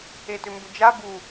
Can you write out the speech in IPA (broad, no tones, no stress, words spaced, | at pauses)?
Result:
etʏmbʏd͡ʒa bu